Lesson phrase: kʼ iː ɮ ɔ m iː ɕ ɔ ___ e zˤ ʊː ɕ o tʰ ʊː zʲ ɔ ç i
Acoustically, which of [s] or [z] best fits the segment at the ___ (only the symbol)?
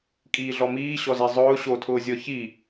z